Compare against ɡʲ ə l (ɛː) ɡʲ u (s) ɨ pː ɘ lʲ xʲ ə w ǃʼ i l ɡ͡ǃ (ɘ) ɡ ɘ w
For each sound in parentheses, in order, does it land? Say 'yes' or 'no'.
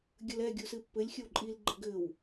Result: no, yes, yes

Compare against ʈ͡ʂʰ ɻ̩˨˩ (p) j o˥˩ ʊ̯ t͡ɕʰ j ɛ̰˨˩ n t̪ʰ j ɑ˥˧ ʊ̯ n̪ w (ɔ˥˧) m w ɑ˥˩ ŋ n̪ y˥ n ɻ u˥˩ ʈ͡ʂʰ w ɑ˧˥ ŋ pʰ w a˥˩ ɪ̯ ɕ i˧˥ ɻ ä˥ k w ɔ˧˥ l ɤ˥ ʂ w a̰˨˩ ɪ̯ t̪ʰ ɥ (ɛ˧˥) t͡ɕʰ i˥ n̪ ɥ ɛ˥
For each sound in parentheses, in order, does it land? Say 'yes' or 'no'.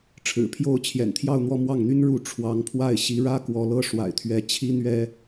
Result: no, yes, yes

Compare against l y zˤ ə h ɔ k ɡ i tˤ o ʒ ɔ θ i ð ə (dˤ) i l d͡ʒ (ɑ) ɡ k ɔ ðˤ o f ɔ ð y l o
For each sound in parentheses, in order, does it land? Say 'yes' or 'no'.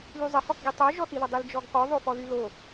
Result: yes, no

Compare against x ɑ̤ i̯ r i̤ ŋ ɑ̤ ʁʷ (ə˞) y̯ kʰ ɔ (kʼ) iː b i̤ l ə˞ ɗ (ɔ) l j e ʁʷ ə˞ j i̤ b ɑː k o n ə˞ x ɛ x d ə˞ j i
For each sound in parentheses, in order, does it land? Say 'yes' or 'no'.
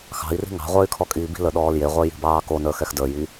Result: yes, yes, no

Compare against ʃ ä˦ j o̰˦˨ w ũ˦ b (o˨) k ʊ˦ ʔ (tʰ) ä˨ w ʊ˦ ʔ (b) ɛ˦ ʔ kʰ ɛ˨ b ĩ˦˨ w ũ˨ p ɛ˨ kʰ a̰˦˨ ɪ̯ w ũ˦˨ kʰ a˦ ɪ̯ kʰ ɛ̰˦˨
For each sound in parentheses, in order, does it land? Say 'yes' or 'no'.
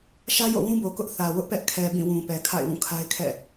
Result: yes, no, no

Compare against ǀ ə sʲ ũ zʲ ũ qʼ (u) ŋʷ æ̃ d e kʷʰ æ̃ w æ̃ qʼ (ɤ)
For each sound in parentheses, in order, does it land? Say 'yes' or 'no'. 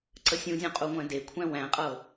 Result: yes, yes

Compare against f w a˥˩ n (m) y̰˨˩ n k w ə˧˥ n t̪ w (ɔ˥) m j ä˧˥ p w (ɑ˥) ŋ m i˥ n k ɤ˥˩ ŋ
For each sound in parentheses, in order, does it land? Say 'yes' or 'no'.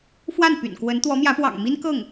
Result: no, no, no

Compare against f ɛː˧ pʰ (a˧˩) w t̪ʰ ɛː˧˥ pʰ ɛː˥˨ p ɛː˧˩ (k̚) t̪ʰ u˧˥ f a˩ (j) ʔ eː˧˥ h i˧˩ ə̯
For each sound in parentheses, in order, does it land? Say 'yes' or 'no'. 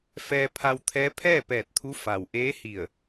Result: no, no, no

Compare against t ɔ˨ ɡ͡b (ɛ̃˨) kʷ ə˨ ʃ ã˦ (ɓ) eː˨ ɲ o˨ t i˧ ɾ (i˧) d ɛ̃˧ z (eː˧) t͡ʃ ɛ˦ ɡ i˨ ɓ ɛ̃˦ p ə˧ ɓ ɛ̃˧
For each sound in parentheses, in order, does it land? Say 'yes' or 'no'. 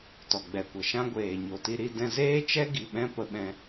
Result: no, no, yes, no

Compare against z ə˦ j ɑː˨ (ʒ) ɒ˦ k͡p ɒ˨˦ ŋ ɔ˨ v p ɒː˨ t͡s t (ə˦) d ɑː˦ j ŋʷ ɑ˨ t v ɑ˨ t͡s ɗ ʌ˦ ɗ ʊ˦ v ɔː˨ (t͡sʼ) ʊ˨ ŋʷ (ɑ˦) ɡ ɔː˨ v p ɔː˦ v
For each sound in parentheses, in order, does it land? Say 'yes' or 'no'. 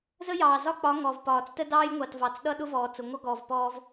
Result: no, yes, no, no

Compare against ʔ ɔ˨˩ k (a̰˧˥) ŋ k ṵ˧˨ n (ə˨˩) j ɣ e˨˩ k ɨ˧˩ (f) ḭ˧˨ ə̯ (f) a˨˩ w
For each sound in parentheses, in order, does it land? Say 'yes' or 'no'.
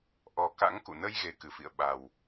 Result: yes, no, yes, no

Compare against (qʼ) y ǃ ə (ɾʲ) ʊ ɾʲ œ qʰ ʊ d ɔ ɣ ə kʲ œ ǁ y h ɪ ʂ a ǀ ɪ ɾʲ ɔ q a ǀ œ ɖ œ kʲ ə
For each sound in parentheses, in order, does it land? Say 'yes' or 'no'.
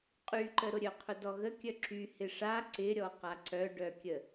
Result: yes, no

